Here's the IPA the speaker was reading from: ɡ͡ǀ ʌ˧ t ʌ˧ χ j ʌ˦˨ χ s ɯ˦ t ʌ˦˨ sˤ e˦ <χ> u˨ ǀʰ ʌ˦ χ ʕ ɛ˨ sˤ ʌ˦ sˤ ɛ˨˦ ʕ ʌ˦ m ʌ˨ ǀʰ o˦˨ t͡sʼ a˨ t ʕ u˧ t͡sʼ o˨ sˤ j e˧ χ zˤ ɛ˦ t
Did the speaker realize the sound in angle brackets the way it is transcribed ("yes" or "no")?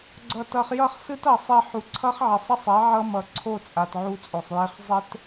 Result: no